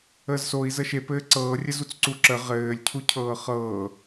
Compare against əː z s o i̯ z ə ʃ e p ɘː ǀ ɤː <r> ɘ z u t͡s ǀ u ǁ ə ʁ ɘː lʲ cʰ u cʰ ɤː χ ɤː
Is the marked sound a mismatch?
yes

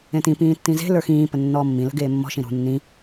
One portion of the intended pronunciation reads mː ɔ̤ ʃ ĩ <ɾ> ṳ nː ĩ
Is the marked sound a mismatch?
no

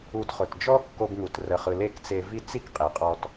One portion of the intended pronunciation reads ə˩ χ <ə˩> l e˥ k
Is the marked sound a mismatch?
yes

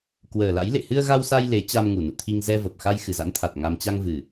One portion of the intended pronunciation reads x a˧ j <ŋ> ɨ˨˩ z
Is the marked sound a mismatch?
yes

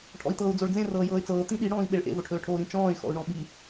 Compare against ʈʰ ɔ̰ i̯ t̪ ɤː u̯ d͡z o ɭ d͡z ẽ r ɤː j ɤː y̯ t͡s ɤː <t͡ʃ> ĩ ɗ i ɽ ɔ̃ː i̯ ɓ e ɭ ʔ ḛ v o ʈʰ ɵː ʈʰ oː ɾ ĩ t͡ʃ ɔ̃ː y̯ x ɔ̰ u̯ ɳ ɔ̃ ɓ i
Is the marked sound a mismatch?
yes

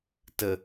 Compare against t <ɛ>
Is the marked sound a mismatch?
yes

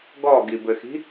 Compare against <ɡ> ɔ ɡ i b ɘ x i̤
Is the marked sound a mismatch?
no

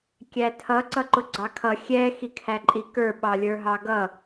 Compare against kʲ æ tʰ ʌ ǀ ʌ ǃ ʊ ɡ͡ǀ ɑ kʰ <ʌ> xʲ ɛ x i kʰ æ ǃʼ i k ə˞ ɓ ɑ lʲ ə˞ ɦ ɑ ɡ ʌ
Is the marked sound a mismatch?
no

